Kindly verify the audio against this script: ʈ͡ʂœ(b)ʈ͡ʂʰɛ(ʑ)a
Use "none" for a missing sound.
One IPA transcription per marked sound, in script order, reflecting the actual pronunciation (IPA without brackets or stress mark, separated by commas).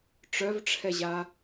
v, ʑ